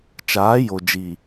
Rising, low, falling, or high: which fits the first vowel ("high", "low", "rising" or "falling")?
rising